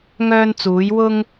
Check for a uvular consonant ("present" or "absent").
absent